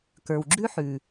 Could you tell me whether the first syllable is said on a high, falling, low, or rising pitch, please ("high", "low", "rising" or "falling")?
low